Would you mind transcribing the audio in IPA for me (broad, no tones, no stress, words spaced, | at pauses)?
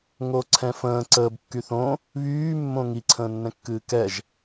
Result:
ŋoǀʰɛ̃fə̃ː ǀəːb kːyθõ | βyː mːõŋi ǀʰə̃ːnːɛ̃kːɨːkɛʒ